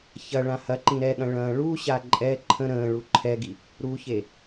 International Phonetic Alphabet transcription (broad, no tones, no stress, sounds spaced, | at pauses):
ç ɐ ɭ ã h ɐ ǃ ĩ ɾ ɛ ɠ ɐ̃ ɭ ɐ̃ː ɭ u ɕ a ǃʼ ɛ ǃʰ ə̃ ɾ ə̃ː ɭ u ǃʰ ɛ ɡ i | ɾ u ç e